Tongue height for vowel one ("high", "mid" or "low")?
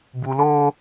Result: high